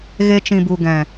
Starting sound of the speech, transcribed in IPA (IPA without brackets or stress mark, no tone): ɣ